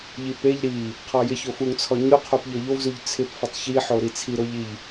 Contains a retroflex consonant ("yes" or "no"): no